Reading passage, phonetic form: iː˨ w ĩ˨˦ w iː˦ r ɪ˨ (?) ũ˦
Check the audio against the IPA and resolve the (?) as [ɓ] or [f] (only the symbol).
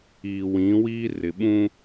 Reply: ɓ